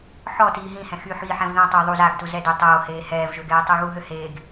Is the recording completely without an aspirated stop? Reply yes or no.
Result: yes